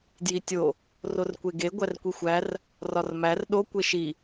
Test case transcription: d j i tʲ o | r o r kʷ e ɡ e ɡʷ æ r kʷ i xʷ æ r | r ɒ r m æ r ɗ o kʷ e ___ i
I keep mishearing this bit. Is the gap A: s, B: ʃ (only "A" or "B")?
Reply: B